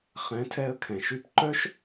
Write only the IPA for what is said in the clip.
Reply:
χ ɛ̃˨˦ tʰ ɛ˧ ə̯ kʰ ɛ̃˨ ʃ y˦ p ǃ œ˦ ʃ

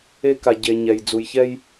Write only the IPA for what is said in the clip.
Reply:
e˦ k a˨ ɟ e˨ ɲ ɛ˨ j d͡z u˨ j ç ɛ˦ j

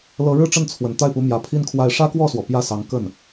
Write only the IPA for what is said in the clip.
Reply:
l ɤ˧˥ ɻ ɻ̩˥˧ ʈ͡ʂ ə˥˩ n t͡sʰ w ə˨˩ n t̪ a˥˩ ɪ̯ p u˧˥ m j ä˨˩ pʰ i˥ n kʰ w a˥˩ ɪ̯ ʂ ä˥ k w ɔ˥˩ s w ɔ˩ p j ä˥˩ s ɑ˧˥ ŋ k ə˥˩ n

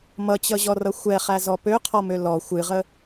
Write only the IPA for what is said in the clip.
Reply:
m ʌ t͡ɕ ʌ ʑ ɔ r ʌ xʷ ɛ χ æ z ɔ p ø qʰ ɔ m ø l ɔ xʷ ɨ ʁ ə

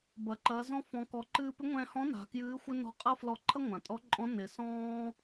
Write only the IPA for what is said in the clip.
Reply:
b ɐ˩ ǃ ɐː˩˧ z ɔ̃˧˥ f ɔ̃˩˧ k ɔ˩˧ ǃ ɨː˧ p ɪ˧˥ ŋʷ ɛ̃ː˧ h ɔ̃˧˥ n a̤˩˧ k j ɨː˧˥ xʷ ɪ˥ n ɔ̤˧˥ qʼ ɐ˥ f l ɔ˧ ǃʰ ɐ˥ ŋʷ ã˩ tʼ ɔ˧˥ ǃʼ ɔ̃˧˥ n ɪ˩˧ s ɔ̃ː˥

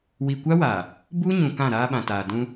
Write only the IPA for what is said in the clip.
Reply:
w i˨ kʷ a˦ w aː˨ | b u˦ ɲ ũ˨ k ã˦˨ ɾ aː˦ ɓ ã˨ t aː˨ d ũ˦

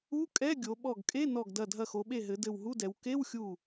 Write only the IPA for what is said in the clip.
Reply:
u˧˥˧ kʼ ɛ˧˥˧ ɡʲ o˩˧ ɓ ɔ˧˩ ɡ kʼ e˧˥˧ n ɔ˧˩ ɡ d ɐ˧˩ dʱ ɐ˧˩ x o˩˧ ɓ e˧˩ ɦ ɘ˩˧ d ɘ˧˩ w ɦ u˧˥˧ d ɛ˩˧ w k e˧˥˧ w xʲ u˧˩

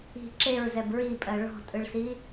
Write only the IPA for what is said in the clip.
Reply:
i̤ ǁ e ɹ z ɛ b ɹ i pʼ ɜ ɭ ɔ̤ tʼ ɯ ɭ s i

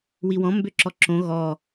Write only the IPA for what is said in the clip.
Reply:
w i w ɔ̃ m b ø ǁ ɔ ǁ õ ɣ ɔ

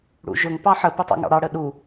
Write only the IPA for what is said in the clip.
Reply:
ɽ ṵ ʒ ʊ ŋ p ɑ ħ ə p ɪ tˤ ɑ̰ ŋ ɑ̰ ɽ ɑ ɽ ə ɗ u

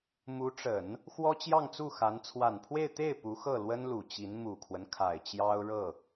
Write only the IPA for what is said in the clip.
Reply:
m u˧˥ ʈ͡ʂ ə˨˩˦ n | x w ɔ˥ t͡ɕ j ɑ˥˧ ŋ t͡s u˥˩ x a˧˥ n t͡sʰ w a˨˩ n pʰ w e˥˧ ɪ̯ t̪ e˥˩ ɪ̯ p u˧˥ x ɤ˥˩ l w ə˥ n l u˨˩ t͡ɕ i˧˥ n m u˨˩ kʰ w ə˦ n kʰ a˨˩ ɪ̯ t͡ɕ j ɑ˥ ʊ̯ ɻ ɤ˥˩

